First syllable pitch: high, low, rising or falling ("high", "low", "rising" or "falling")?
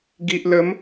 low